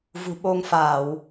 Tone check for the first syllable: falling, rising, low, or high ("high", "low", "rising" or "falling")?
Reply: low